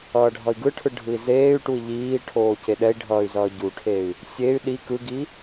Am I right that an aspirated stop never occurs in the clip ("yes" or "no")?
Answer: no